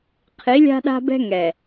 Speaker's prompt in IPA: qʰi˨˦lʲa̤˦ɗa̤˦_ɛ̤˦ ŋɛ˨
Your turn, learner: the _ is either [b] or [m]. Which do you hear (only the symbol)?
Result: b